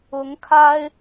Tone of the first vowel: rising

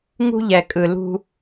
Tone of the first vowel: high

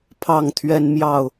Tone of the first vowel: falling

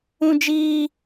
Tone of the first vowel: high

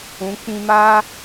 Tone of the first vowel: rising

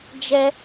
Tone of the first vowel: high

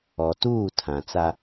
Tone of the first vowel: low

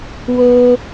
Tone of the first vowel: high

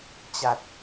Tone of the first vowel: low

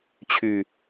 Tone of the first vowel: low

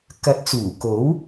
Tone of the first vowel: rising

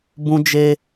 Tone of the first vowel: high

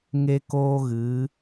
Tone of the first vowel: high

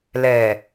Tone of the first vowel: low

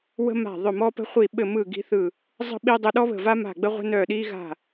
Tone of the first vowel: high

